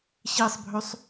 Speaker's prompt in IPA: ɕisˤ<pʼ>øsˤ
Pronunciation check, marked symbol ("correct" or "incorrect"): incorrect